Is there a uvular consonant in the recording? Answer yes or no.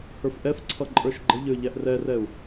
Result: no